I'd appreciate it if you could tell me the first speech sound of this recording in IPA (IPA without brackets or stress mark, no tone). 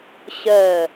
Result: ɕ